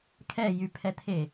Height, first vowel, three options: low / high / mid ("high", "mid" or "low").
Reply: mid